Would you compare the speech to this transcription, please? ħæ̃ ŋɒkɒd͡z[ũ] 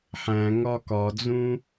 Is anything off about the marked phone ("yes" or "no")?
no